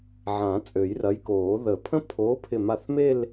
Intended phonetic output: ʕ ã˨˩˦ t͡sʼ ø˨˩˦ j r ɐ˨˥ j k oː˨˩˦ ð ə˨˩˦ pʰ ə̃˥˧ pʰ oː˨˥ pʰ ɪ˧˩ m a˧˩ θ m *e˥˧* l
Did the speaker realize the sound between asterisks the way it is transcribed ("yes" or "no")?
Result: yes